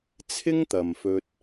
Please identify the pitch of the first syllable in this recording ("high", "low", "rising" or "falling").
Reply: high